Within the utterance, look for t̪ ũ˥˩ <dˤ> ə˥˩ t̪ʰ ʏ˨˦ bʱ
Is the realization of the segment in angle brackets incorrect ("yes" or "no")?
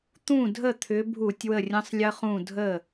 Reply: yes